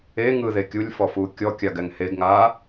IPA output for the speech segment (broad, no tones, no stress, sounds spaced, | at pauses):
e ŋ ɯ ð e kʲ u lʲ f ɔ f uː kʲ ɔ kʲ a ɡ ɛ ŋ h e ɡ ŋ aː